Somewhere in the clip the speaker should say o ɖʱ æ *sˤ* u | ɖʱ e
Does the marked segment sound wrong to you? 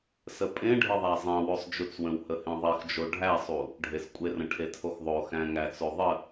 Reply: no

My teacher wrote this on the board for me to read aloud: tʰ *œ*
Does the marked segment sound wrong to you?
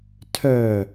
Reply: no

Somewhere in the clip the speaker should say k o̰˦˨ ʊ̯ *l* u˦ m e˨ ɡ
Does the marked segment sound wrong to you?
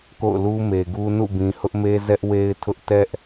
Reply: no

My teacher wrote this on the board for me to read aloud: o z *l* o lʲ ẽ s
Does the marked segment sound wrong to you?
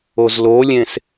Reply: no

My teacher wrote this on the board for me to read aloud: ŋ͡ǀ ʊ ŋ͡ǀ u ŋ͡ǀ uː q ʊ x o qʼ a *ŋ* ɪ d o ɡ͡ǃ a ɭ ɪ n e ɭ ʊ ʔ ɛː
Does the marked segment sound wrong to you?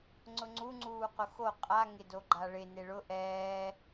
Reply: no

